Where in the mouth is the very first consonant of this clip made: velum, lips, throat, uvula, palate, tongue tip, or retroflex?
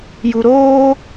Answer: palate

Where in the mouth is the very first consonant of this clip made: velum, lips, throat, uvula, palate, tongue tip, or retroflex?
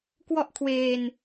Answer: velum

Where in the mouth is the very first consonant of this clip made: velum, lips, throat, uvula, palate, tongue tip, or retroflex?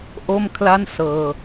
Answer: throat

